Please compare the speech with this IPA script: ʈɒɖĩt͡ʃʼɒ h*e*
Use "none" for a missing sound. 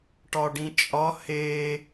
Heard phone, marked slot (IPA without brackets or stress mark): e